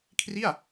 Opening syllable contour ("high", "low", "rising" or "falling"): falling